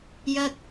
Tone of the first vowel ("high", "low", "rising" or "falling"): high